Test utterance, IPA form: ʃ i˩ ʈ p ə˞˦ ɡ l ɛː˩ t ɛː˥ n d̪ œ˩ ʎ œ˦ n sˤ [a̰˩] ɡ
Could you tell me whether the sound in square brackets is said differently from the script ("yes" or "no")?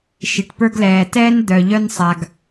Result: yes